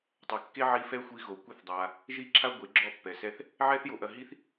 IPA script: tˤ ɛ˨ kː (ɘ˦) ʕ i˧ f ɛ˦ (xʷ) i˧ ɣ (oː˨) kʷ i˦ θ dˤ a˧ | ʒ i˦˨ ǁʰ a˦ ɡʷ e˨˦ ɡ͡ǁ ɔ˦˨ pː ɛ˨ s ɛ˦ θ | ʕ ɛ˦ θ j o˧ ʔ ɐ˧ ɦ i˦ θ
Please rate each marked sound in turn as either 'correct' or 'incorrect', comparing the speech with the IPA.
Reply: incorrect: e˦, correct, incorrect: o˨

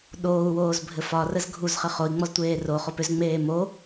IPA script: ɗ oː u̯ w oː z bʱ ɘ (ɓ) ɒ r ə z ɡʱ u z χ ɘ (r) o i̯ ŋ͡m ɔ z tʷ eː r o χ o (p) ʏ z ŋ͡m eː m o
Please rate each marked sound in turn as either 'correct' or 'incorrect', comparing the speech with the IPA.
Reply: incorrect: f, incorrect: χ, correct

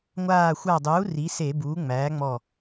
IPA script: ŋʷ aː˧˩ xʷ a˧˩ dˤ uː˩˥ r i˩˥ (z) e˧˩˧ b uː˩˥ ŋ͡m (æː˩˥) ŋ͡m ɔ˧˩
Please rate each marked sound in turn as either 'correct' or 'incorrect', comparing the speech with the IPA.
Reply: incorrect: s, correct

